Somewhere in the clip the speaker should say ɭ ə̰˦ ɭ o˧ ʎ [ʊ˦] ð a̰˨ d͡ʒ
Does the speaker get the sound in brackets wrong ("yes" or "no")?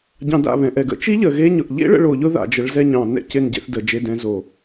no